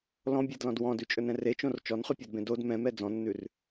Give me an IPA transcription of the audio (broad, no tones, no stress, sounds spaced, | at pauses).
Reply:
l ɔ̃ bʲ ɛ d l ɔ̃ d w ɔ̃ d ʉ t͡ʃʼ ɵ n ɛ̃ r e t͡ʃ õ r t͡ʃ ɔ n χ ʉ pʲ ɔ d b ẽ d o d m ɛ̃ m ɛ d͡z ɔ̃ nː ʉ r